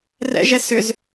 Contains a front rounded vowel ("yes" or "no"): yes